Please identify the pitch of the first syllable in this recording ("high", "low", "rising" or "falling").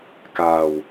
low